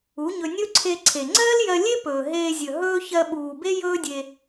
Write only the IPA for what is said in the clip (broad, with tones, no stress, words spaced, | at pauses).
u˨˦ɲɵ˧ nʲɵ˦ǀʰe˧ǀʰe˨ ŋ͡ǀɜː˦ljɜ˧lʲe˦ pɵː˨ɦeː˧zʲɵ˨ ɦɵː˦ çɜ˧ɓuː˨be˦ jɵː˦dʲe˧